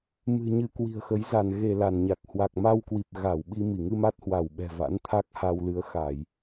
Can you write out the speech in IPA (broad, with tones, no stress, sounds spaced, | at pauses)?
m ɨ̤˨˩ ɲ ɨ˧ k w i̤˨˩ ə̯ x ə˨˦ j z a˧˩ n ɣ e˧˩ l a˧˩ n ɲ a˨˩ k̚ h w a˨˩ k̚ m a˧ w k w i˨˩ p̚ ɣ a˧˩ w ɓ i˧ m i˧˩ ŋ ɨ˧ m a˦˥ t̚ h w a˧˩ w ɓ ɛ̤˨˩ v a̰˧˥ n t̪ʰ a˦˥ k̚ h a˧ w l ɨ˨˦ ə̯ x a˧˩˨ j